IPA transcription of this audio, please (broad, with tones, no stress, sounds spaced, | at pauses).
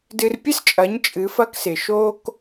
d ɨ˧ r pʲ ɨ˥ s t͡ʃʼ ɐ˩˥ ɲ t͡ʃʼ ɨ˩˥ f ɐ˥ k s ɪ˩ ʃ o˥ k